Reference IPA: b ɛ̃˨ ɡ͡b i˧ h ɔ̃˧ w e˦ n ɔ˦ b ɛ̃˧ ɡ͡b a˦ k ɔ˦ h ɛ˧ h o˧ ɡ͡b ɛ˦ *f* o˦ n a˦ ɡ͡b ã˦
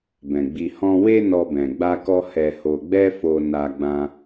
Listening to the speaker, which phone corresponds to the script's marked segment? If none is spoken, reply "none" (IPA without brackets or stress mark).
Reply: f